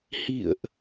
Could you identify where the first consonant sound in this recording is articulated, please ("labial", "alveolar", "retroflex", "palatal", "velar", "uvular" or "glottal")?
glottal